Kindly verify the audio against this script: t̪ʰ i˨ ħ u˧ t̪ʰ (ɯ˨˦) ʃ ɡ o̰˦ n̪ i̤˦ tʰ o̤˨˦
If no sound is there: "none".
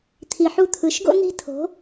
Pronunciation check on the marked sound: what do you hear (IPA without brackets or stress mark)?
ɯ˨˦